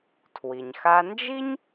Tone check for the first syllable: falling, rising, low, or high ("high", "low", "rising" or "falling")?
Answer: low